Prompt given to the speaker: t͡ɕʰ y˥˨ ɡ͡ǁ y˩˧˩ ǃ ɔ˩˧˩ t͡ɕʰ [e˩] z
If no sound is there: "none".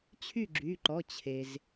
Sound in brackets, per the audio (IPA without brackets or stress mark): e˩